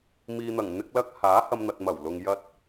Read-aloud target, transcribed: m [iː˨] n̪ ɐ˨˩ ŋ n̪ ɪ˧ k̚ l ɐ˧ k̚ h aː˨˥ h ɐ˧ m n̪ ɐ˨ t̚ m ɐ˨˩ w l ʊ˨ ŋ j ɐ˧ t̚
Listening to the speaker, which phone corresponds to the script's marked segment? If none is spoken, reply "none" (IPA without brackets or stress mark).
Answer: iː˨